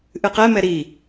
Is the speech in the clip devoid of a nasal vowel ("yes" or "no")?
yes